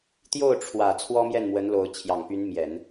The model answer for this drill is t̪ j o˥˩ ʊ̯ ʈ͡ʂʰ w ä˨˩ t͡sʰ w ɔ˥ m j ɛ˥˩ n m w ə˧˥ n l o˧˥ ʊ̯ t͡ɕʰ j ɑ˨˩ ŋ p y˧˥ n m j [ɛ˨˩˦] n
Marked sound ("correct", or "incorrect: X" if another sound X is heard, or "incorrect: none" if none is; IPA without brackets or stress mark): correct